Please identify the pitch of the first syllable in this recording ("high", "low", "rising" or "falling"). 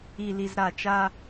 low